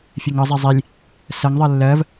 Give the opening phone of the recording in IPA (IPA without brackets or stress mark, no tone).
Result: fʲ